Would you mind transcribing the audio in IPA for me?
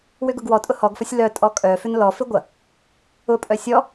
w ʏ ɡ ʊ ɡ w ɔ tʼ ʊ h ɔ ɡ f ɐ sʲ l œ tʼ ɔ kʼ œ f ʏ n l ɔ f ɪ ɡʷ ɐ | ʊ pʼ œ sʲ ɔ

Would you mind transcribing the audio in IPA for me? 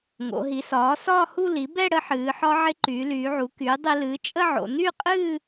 ŋ o̰˩˧ ɦ i˩˧ s ɒː˩˥ s ɒː˥˧ h u˥˧ l i˩˥ b ɛ˥˧ ɽ ə˧ ħ ɨː˩˧ ħ ɒ˧ ʕ ɪ˧ ǃ yː˩˧ l yː˩˧ ʕ u˩˧ k yː˩˥ dˤ i˧ l ɨː˩˥ t͡ʃʼ ə˥˧ ʕ o̰˩˧ n y˥˧ qʼ ɨː˥˧

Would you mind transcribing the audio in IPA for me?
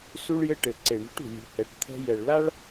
s u˧ ɭ j ɘ˧ ʈ ɘ˨ ǀ e˨ ɳ ṳ˨˦ ʈ ṳ˨ lʲ ṳ˨ h ɛ˨ ʈ t̪ʰ ɛ̤˧ j ɛ˨ ɭ l a˦ ɭ

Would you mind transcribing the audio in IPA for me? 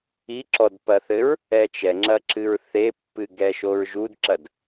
i ǁ ɔ d p ɐ θ ɘ ɹ | ɛ t͡ʃ ɛ ŋ͡ǁ ɐ ǁ ɨ ɹ θ e pː ɨ ɡ ɛ ʃ o ɹ ʒ u d ǁ ɐ d

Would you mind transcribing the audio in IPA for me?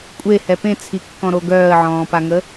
kʷʼ e h ɛ p ẽ t͡sʰ i kː ɔ̃ ɾ o ɡ œː ə̯ ʕ ɔ̃ː p a ŋ ə

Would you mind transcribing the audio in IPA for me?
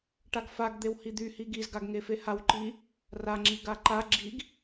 ʈ a ɡ f a ɡ d̪ e w h i d̪ y h i ɡ i z ɡ a ɡ ŋ e f e h a w ǃ i | r a ŋ͡ǁ i ɡ a ǃ a ɡ͡ǁ i ɡ

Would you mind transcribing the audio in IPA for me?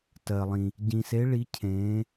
t ɜ˨ lˠ ĩ˨ | ɟ ĩ˨ s e˨˦ ɭ i˨˦ cʰ ẽː˨˦

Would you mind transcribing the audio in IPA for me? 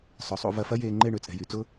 sˤ ʊ˨ sˤ ṵ˧ v ɐ˧ f ɐ˦ j eː˧ ŋ͡ǃ e˦˨ ɳ ø˦ t͡sʼ ɛ̤˨ j y˨ t͡s ʊ˦

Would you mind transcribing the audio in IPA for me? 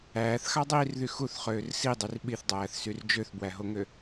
æː θ x ɑ dˤ iː r ð y x u θ χ øː r s i dˤ y r ɓ i θ dˤ æː θ s y r d͡ʒ ø θ b w æ ɦ o ŋ ø

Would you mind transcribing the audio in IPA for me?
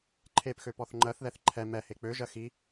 ǃʰ e p x ø p ɔ θ ŋ͡ǃ ɜ θ ð ɛ θ ǃʰ ɛ m ɛ h e k͡p ø ʒ ɜ x i

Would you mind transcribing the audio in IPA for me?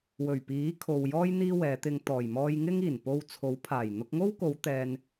w ɵ˨˩ ɥ p iː˨˥ kʰ o˨ w j ɔː˧ j n̪ iː˥ w ɛː˨˧ t̪ ɪ˧ ŋ t̪ ɔː˨˩ j m ɔː˧ j ŋ ɪ˥ ŋ iː˨˩ n p o˧ w t͡sʰ o˨˥ w pʰ aː˨˩ j n̪ ʊ˧ k̚ ŋ o˥ w k o˨˧ w t̪ ɛː˧ n

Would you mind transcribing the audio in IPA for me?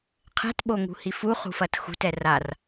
qʰ ɛ̤ t ɓ o ŋ ṳ h i f u χ ṳ f ɐ t x ṳ t ɛ r a r

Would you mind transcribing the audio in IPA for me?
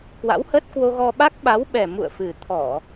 k w a̰˧˥ w h ə˦˥ t̚ k w o˧ ɣ ɔ˧ ɓ a˦˥ k̚ ɓ a˨˦ w ɓ ɛ˨˩ m ṵ˧˨ ə̯ f ɨ˨˩ t̪ʰ ɔ˧˩˨

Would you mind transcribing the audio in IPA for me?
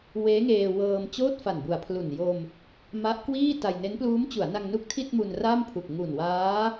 w eː˦˥ ŋ eː˧ w ɤː˧ m t͡ɕ oː˥˩ t̚ f a˨˩ n b u˨˩ a̯ pʰ l u˨˩ n j o˧ m | m a˦˥ ʔ k w iː˥˩ t a˧ j n e˦˥ n p l uː˦˥ m t͡ɕ u˩˦ a̯ n a˧ ŋ n u˦˥ k̚ tʰ i˥˩ t̚ m u˧ n r a˥˩ m pʰ u˨˩ k̚ ŋ u˨˩ n w aː˦˥

